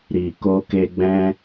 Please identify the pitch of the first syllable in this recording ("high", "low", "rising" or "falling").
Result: low